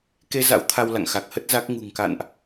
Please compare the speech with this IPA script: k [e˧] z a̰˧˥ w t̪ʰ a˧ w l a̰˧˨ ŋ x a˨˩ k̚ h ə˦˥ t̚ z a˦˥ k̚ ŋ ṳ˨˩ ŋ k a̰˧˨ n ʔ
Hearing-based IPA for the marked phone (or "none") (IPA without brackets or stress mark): e˧